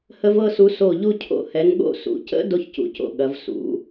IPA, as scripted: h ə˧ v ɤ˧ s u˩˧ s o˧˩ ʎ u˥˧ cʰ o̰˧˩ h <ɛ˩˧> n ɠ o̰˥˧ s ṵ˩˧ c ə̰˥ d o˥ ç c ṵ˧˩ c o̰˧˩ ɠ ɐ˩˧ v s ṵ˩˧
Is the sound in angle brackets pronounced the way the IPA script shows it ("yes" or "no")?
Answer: yes